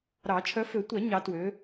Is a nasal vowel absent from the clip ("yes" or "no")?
yes